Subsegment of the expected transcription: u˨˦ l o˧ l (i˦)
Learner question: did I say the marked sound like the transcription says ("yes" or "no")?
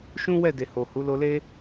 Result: no